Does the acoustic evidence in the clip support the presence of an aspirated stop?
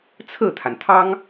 yes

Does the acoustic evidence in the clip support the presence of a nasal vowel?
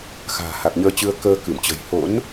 no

